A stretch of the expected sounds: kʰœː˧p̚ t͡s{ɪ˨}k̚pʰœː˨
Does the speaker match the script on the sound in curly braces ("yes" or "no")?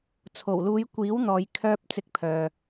no